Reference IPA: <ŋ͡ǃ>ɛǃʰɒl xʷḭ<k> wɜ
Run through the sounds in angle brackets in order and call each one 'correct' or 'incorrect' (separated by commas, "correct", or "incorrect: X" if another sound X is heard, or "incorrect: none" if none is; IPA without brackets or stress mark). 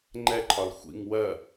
correct, incorrect: ŋ